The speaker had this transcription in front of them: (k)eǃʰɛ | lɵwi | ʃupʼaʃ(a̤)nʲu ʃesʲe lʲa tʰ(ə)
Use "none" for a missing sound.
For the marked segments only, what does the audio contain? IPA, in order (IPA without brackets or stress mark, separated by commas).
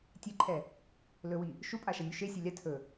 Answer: tʲ, a, ɵ